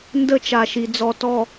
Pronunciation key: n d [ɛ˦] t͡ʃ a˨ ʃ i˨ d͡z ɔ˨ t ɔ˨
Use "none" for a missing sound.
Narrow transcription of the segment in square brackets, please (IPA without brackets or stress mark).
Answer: ə˦